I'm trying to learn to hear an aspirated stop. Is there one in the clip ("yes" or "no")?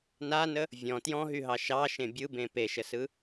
no